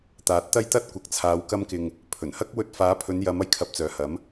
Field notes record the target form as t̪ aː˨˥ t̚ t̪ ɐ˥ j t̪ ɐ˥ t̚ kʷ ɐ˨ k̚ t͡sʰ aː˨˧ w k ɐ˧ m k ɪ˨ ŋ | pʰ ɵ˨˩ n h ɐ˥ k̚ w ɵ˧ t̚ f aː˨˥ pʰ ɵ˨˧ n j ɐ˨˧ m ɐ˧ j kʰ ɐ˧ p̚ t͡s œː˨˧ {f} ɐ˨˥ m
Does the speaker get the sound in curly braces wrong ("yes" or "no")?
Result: yes